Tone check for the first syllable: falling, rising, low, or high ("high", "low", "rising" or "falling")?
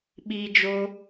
high